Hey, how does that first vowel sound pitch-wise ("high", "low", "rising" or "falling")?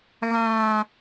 high